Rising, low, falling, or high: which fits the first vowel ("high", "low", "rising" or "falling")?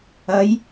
rising